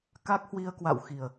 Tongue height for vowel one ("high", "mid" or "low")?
low